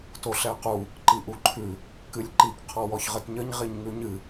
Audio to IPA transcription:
t o ɬ ɛ q u | ǃ i ʔ u ǃʰ ʉ | k ɨ lʲ ǃ i k qʰ ɔ w ɔ ç ʁ ə t ɲ ə ɲ ʁ i ɲ ŋ ʉ ɲ ɨ

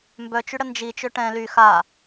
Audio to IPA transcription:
m b œ t͡ʃ y ɽ ə n d͡ʒ i t͡ʃ ø ʈ ɛ̃ l y x a

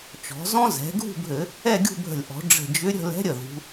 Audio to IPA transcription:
t͡ʃ ɔ̤˩˧ z ɔ̃˥ z ɛ̤˩˧ ɡʱ ṳ˥˧ bʱ ɘ˧˩˧ | ɛ˥˧ ɡʲ ṳ˥˧ bʱ ə̤˧˩ lʲ ʔ ɔ̤˩˧ ɖ͡ʐ ə̤˧˩ d͡ʒ ʏ˧˥ ɾʲ ə̤˥˧ l ɛ̤˧˥ ɾʲ ə˧˩ ð ṳ˩˧

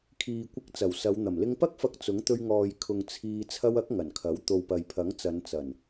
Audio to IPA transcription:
kʰ iː˨ kʷ ɪ˧ k̚ t͡s ɐ˨˩ w s ɐ˨˧ w n̪ ɐ˨˩ m l ɪ˧ ŋ p ɐ˥ k̚ f ɐ˧ k̚ t͡s ʊ˨˥ ŋ t̪ ɵ˧ ɥ ŋ ɔː˨ j kʰ ʊ˨ ŋ t͡sʰ iː˧ t͡sʰ ɐ˧ w ɐ˨˥ k̚ ŋ ɐ˨˩ n kʰ ɐ˨˥ w t̪ o˨ w p ɐ˨ j pʰ ɐ˨˥ ŋ t͡s ɐ˨˧ n t͡s ɐ˨˩ n

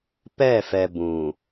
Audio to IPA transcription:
p ɛ˦˨ f ɛ˨ b ũ˨

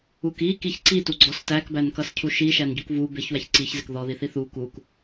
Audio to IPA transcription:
u k i k i ç ǀ i t u ɡ͡ǀ ɔ s t æ k b æ n k ʌ s cʰ u ʃ i ʃ æ n ɟ u k v u b ɪ ç w æ ç ǀ i ç z ɪ k ð ɔ ð i θ i θ u k u k

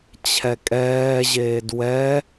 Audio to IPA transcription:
t͡ɕʰ ɛ kʼ ɛː ʑ eː d w ɛ

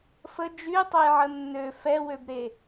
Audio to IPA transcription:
f ə d͡ʒ y tˤ œ j ʕ ə nː ø f ɛ w ø b ɾ e

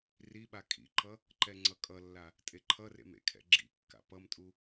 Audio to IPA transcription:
r i ɓ a kʼ ḭ ǃ ʌ | ǃ ɛ ŋ͡ǀ ʌ kʼ ʌ lː a | tʼ e ǃʰ ʌ r ḛ m ḛ kʰ ɛ̰ ɡ͡ǁ ḭ kː a̰ p ʌ m tʼ u

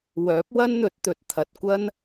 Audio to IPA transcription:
w œː˨˥ p̚ w ɐ˥ n n̪ ɵ˨˥ t̚ t̪ ɵ˨ t̚ t̪ʰ ɐ˨ t̚ kʷ ɐ˥ n

